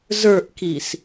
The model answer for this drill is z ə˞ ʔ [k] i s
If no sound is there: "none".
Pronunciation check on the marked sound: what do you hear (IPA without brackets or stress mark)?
k